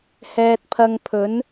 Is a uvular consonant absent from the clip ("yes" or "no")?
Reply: yes